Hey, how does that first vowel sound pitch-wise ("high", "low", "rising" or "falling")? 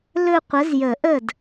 falling